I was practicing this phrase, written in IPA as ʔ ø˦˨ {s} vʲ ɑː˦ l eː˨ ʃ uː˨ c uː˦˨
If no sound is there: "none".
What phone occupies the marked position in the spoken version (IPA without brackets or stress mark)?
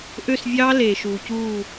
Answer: s